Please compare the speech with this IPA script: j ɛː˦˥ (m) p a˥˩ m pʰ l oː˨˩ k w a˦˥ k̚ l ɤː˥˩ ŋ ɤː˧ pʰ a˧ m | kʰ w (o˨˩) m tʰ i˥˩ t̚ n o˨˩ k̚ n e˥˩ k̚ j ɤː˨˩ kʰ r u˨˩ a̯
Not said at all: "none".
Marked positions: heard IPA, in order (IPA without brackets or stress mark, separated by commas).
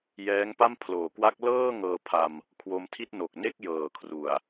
ŋ, o˧